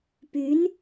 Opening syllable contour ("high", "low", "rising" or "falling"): rising